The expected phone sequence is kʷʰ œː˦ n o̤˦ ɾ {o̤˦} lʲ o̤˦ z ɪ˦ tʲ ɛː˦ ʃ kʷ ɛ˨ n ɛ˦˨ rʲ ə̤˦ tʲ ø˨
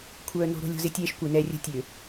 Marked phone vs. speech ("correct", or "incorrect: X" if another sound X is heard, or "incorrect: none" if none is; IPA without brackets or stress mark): correct